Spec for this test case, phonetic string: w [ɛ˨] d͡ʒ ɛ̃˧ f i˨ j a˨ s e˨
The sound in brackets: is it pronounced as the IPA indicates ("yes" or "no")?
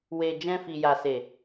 no